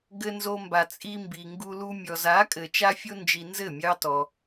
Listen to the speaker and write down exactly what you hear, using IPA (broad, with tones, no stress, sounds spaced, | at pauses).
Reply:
ɡ ɘ˧ n z o˧ m b a˨ t͡sʼ i˧ m b i˨ ŋ ɡ u˧ l u˧ mʲ ɔ˨ z a˨˦ kʼ ɘ˨ t͡ʃ a˦ fʲ o˦ n d͡ʒ i˧ n z ɘ˦˨ mʲ ɑ˦ t ɔ˧